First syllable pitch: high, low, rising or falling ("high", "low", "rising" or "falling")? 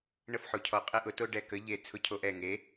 high